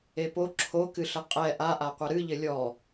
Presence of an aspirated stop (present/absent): present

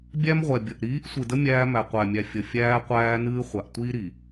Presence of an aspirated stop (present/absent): absent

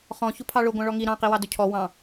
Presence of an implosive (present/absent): absent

